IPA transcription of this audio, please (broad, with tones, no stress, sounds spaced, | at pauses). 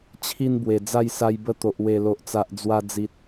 t͡ɕʰ i˧ n b w e˨˩ d͡z a˥˧ j s a˧ j b ə˧ t̪ o˨ ʔ w e˨˩ l o˨ ʔ t͡s a˨ ʔ d͡z w a˧ d͡z i˨ t̚